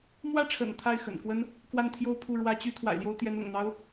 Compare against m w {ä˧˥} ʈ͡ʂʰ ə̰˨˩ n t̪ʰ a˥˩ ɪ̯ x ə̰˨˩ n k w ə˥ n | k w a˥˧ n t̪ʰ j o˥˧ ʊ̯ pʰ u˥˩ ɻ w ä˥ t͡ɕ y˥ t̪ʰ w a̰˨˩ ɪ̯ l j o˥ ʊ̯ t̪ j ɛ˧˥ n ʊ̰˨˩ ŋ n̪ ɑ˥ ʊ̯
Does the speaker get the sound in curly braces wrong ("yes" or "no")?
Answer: yes